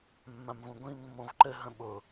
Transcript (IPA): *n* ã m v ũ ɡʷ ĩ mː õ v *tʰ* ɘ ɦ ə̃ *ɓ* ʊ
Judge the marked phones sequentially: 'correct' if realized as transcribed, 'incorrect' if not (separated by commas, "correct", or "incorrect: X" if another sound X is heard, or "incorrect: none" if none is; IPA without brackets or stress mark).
incorrect: mː, incorrect: ǃ, correct